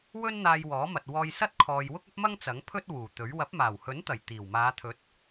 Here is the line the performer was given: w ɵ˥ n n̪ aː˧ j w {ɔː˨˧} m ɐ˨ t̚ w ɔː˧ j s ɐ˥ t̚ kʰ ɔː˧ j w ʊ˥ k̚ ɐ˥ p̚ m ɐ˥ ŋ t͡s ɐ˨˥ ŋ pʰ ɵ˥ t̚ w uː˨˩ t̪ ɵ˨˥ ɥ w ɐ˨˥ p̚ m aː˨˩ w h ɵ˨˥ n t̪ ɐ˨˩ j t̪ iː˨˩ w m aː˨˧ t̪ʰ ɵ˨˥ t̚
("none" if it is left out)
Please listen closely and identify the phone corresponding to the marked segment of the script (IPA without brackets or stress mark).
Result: ɔː˨˥